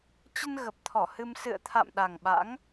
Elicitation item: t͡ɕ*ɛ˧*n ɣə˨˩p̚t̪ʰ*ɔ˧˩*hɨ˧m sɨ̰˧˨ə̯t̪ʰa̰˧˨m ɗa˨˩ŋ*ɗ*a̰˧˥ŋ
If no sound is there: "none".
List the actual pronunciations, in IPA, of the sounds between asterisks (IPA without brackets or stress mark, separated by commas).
ə˧, ɔ˧˩, ɓ